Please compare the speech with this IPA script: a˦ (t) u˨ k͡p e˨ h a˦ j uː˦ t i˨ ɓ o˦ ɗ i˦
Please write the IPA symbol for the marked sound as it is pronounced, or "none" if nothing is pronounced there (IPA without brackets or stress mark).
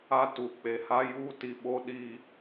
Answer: t